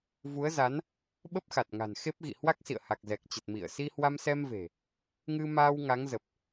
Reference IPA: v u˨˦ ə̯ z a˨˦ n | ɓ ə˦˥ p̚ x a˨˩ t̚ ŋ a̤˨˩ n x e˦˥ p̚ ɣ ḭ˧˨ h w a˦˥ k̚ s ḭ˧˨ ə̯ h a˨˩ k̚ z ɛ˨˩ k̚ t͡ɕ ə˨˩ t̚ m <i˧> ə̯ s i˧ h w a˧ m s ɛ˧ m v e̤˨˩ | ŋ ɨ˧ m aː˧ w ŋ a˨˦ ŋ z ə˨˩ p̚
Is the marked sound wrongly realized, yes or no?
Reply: yes